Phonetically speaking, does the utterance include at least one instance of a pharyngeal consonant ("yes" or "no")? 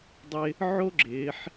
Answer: yes